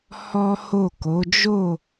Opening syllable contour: high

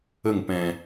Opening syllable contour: falling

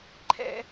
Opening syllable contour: high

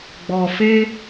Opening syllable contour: low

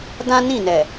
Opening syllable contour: high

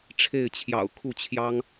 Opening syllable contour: falling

